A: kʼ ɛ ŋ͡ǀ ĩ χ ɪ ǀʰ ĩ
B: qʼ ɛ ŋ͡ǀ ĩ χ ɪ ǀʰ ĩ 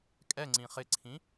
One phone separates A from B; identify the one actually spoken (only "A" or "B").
A